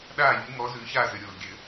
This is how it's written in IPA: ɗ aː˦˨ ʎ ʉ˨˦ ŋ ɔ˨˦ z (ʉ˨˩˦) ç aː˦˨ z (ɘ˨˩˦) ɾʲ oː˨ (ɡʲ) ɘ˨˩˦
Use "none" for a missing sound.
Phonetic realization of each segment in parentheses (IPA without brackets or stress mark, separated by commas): ʉ˨˦, ɘ˨, ɡʲ